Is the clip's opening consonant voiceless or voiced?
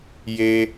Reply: voiced